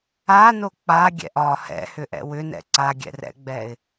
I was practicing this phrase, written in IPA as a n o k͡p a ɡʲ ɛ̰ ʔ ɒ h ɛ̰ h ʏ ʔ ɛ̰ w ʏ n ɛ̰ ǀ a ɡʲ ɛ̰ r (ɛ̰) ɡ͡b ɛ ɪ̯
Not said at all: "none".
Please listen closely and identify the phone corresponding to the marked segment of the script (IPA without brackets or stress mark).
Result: ɛ̰